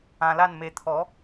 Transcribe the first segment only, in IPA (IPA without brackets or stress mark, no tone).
ã